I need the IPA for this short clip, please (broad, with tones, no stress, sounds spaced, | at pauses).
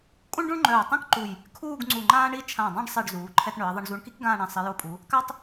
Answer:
kʼ ũ˥ ɳ ɖ ũ˥ ɳ ŋ͡ǃ œː˧˩ tˤ ɛ̃˥ k ǃ u˧˩ j | kʰ uː˥˧ ɡ ŋ͡ǀ u˧˩ ŋ͡ǃ ãː˥ ɳ i˥ t͡ʃʰ ã˧˩ dˤ ã˥˧ ɖ sˤ i˧˩ ɖ z uː˩˧ ǃʰ ɛ˧ t ɳ œ˩˧ ɐ̯ ðˤ ə˧ ɳ z u˧ ɳ k i˥ k ɡ ãː˥˧ ɳ ɛ̃˧ sˤ i˩˧ j o˧˩ pʼ u˩˧ | k a˥ tˤ